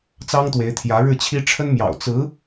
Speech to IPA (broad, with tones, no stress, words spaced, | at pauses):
t͡sɑ˥ŋt̪we˧˥ɪ̯ t̪ʰjä˧˥ɻɻ̩˥˩t͡ɕʰi˥ ʈ͡ʂʰə˥nmjɑ̰˨˩ʊ̯ t͡sɹ̩˧˥